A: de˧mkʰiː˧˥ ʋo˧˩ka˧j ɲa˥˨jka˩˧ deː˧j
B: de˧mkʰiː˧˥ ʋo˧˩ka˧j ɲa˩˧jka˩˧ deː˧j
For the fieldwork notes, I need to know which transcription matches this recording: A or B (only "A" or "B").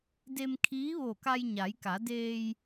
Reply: B